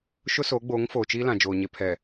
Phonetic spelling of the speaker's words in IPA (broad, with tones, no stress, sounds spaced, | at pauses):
ʃ ʊ˦ s o˨˦ ɡ͡b oː˨˦ ŋ f oː˨ t͡ʃ iː˦ l ã˨ d͡ʒ oː˨ ɲ e˨ pʰ ɛ˨